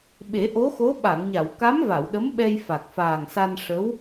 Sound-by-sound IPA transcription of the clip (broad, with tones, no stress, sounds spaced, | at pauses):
ɓ e˨˩˦ ʔ o˧˥ x o˧˥ ɓ a˨˩˨ ŋ ɲ a˨˩˨ w k a˧˥ m v a˨˩˨ w ɗ ə˧˥ m ɓ ɛ˧ j f a˨˩ k̚ f aː˨˩ ŋ s a˧ n ʂ ə˧˥ w